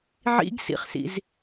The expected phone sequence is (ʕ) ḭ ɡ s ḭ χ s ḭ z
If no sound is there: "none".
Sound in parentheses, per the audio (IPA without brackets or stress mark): ʕ